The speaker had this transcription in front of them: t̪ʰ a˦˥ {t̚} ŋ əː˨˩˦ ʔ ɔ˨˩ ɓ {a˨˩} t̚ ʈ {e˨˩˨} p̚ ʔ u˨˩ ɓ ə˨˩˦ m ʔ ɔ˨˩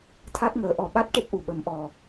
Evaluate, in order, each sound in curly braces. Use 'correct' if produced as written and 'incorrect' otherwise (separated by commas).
correct, incorrect, incorrect